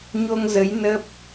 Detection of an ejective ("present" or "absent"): absent